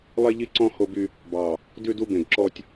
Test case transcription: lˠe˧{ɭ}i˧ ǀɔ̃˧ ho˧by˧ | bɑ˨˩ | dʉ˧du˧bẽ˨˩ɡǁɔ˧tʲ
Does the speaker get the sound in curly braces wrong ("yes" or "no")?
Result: yes